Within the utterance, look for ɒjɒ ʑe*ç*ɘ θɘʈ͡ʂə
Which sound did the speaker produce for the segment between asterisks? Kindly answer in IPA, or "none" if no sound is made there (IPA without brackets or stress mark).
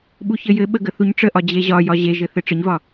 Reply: ʒ